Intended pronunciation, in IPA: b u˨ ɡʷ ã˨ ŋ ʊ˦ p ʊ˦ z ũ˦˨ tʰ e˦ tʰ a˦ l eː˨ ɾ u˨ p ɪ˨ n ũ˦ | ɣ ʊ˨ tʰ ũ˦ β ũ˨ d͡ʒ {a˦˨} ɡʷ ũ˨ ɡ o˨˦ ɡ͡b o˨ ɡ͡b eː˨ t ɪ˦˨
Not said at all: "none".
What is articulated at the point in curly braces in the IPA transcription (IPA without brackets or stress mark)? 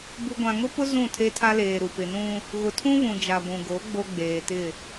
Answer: a˨